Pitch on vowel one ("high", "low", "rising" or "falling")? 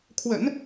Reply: low